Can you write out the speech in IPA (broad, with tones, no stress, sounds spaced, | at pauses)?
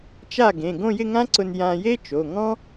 t͡ʃ a˥˩ ɡ ẽ˩˧˩ ɡ õ˥˧ j ɪ˥˧ ŋ ã˥ ǀ ʊ˧ n j ã˧ j e˥ t͡ʃ o˩˧˩ ŋ ɔ̃˥